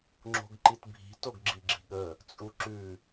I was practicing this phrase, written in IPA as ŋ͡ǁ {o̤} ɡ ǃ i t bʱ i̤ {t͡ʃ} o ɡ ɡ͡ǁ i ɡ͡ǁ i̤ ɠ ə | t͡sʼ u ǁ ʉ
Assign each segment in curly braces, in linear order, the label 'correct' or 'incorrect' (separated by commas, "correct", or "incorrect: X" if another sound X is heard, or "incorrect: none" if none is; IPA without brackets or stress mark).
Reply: correct, incorrect: t